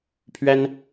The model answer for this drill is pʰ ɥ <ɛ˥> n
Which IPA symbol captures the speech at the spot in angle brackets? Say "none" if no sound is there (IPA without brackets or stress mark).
ɛ˥